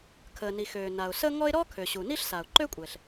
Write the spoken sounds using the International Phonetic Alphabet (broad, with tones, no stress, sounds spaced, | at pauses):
kʰ əː˩ n i˩ x øː˩ n a˩ ʊ̯ s ə˥ ŋ ɔ˥ ɪ̯ ɾ ɔ˥ kʰ ø˩ ɕ u˩ n i˥ ɬ s a˩ ʊ̯ ǃ ø˥ kʷʼ ɛ˩ ɬ